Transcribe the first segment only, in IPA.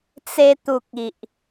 t͡s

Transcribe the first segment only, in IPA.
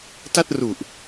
t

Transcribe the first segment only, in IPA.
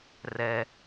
r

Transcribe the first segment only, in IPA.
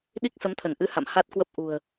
ɗ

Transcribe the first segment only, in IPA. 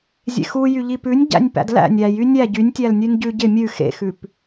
zʲ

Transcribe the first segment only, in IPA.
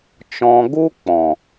t͡ʃ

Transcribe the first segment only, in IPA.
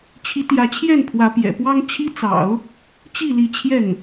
t͡ɕʰ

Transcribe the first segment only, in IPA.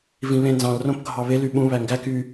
v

